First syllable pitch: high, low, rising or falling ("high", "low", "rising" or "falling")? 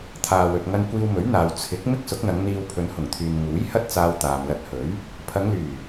low